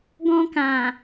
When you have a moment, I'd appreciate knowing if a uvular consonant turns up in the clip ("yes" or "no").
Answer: no